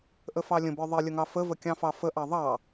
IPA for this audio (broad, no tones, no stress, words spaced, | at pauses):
ʔəfɑlʲə̃bə˞ ðˤilʲəŋɑ fəvəkʲɑ̃fɑ fəʔɑ ðˤɑ